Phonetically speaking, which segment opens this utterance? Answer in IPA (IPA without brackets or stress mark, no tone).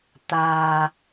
t̪